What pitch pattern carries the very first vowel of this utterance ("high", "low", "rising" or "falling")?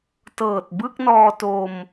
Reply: low